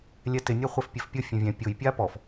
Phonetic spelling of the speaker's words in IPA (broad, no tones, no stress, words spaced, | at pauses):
lʲɛtɪ nʲaχʷɛfpʲɛfpʲʊ fʲɛ̃vʲɛ̃ pʲʊj pʲapɔf